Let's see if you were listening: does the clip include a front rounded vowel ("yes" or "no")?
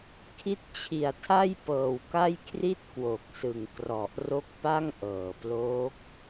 no